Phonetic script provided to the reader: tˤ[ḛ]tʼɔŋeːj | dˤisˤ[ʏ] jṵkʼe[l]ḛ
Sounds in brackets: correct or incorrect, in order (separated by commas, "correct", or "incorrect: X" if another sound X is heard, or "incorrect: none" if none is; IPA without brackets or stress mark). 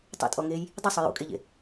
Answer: correct, correct, incorrect: ʎ